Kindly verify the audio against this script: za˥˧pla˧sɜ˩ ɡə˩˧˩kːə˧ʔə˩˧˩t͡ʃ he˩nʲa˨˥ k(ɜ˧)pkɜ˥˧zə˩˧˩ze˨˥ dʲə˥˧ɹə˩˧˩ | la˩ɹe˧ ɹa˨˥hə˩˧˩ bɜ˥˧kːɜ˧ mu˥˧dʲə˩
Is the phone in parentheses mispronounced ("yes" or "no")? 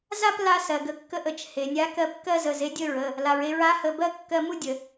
no